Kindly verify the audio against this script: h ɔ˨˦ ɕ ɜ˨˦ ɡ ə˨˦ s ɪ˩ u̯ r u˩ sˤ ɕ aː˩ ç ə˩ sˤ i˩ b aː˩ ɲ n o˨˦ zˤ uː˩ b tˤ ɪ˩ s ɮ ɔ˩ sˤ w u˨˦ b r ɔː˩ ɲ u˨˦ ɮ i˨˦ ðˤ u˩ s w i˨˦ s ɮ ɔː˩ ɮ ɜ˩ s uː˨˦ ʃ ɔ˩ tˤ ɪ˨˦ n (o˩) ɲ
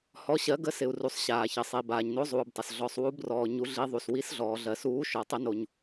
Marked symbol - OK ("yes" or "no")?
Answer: yes